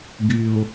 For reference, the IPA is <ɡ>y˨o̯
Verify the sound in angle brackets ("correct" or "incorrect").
correct